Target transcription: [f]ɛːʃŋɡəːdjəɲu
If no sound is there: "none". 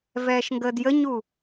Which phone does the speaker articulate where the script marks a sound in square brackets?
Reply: v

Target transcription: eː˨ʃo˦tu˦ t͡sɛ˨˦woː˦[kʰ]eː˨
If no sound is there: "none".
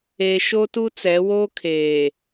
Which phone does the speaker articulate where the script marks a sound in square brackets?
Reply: kʰ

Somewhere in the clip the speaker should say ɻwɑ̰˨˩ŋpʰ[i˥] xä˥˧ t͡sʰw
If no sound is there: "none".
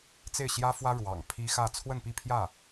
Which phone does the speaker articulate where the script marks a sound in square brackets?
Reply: i˥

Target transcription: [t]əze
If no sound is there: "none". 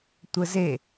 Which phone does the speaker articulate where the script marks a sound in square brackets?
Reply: tʷ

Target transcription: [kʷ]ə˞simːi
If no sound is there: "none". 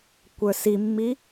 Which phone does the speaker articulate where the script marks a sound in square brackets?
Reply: kʷ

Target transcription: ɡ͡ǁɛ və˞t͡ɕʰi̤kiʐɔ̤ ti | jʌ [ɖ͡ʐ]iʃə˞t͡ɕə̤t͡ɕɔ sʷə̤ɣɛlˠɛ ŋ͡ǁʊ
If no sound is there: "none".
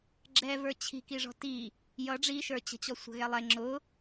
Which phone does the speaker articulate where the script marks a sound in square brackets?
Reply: ɖ͡ʐ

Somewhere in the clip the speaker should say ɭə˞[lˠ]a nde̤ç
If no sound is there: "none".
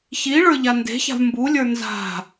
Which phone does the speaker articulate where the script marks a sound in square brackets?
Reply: ʎ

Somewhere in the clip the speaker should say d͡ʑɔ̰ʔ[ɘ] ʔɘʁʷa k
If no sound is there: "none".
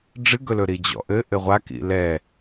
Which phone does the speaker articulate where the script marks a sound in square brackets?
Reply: ɘ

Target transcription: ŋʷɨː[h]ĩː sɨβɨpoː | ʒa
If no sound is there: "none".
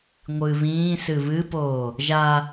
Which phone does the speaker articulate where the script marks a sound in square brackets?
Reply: β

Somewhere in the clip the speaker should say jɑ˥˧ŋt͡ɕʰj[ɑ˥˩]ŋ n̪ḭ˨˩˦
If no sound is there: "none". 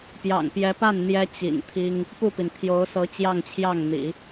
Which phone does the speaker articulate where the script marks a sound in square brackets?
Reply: ɑ˥˩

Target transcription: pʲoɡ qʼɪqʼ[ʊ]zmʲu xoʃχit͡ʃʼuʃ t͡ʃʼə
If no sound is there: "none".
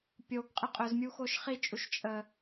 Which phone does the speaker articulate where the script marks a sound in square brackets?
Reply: ʊ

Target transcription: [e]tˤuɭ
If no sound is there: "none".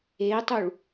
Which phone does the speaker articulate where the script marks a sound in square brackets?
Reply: e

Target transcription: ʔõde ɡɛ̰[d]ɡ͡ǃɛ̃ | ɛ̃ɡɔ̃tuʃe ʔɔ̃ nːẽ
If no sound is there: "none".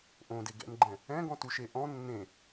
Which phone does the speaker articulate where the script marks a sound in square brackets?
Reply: n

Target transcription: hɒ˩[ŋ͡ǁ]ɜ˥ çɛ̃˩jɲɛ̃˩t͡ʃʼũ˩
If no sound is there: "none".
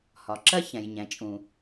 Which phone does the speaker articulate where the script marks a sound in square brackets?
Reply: ǁ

